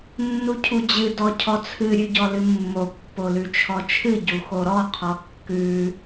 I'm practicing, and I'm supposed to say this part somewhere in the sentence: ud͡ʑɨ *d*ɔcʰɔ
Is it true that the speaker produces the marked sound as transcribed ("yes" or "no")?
yes